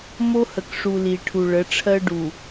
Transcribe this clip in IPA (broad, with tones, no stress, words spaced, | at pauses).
mo˦hə˨kʂu˨ li˨ʈʰu˨ ɭə˨˦ʈ͡ʂʰɜ˦ ɖu˨